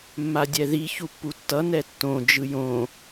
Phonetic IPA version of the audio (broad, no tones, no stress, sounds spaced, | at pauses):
mː a dʲ ɛ ð i ç u pː u tː ʌ n ɛ tː õ d͡ʒ ɯ j õ